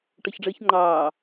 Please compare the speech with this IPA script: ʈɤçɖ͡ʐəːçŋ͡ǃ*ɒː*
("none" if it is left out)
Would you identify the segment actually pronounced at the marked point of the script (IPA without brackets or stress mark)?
ɑː